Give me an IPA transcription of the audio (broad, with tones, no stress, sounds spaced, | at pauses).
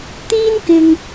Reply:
t̪ iː˥ n k ɪ˨ ŋ